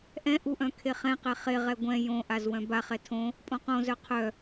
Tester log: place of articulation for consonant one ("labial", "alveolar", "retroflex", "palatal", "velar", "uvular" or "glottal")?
glottal